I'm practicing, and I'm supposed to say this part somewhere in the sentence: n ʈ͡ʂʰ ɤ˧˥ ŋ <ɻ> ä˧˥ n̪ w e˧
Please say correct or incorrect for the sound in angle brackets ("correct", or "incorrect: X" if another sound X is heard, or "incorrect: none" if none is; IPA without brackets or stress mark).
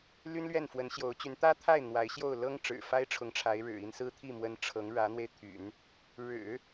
correct